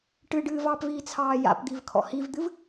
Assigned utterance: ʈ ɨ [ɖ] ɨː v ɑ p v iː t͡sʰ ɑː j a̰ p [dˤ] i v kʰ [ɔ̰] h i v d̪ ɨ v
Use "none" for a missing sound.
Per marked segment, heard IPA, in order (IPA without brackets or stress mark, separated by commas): ɖ, d̪, ɔ̰